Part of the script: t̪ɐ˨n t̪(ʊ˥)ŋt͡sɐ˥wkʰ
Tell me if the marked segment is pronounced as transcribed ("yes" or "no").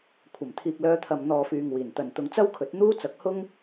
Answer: no